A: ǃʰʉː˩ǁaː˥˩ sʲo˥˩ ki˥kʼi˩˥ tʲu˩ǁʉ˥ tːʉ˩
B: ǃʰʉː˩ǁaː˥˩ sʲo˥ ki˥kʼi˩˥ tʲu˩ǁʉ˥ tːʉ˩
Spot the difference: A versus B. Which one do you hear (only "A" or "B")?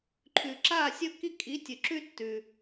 B